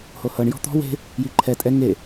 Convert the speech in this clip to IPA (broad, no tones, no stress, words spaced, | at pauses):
hohɤɳ jɔ̤t̪ɔ̤ we̤ | jiǃʰɛ tʼɛ ŋe